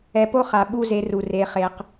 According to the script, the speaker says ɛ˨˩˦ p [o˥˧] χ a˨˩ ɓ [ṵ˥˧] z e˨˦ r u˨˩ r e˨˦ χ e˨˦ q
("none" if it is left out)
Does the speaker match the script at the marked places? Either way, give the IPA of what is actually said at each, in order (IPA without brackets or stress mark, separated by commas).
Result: o˥˧, u˥˧